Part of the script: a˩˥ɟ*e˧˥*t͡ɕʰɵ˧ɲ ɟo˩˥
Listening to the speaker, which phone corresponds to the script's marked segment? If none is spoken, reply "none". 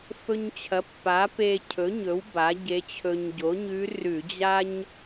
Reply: e˧˥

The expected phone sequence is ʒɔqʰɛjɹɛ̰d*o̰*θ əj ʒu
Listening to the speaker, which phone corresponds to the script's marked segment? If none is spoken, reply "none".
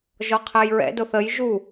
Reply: o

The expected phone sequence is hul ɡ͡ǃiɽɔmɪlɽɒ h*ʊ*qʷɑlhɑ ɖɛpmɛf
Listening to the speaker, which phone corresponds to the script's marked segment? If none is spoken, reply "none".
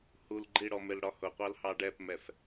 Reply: ʊ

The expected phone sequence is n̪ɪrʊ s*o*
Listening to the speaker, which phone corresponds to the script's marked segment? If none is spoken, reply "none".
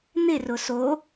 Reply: o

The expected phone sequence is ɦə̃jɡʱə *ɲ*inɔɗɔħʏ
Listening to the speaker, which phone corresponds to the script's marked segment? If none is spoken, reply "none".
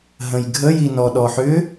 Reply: j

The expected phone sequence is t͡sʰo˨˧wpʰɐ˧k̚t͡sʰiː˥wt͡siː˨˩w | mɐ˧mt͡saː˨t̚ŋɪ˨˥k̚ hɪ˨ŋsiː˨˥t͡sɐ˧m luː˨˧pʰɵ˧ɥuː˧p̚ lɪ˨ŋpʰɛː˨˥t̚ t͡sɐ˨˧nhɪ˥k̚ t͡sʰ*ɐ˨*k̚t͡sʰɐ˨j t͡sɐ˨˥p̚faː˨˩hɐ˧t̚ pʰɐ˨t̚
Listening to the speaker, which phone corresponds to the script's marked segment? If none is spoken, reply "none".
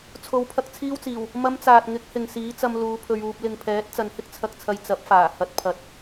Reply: ɐ˨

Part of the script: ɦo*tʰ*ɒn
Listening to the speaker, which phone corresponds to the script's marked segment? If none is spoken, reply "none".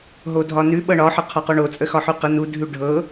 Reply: dʱ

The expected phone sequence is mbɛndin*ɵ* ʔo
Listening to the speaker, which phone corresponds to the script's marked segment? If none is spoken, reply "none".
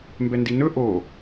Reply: ɵ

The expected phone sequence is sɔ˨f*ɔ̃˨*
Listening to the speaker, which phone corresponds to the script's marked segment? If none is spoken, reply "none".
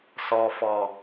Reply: ɔ˨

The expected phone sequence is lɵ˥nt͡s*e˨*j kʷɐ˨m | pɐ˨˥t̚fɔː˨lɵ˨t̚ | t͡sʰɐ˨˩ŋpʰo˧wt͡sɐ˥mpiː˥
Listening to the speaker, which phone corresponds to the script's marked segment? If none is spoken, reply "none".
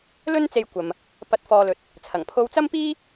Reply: e˧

